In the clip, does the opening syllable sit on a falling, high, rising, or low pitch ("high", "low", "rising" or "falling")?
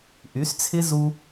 rising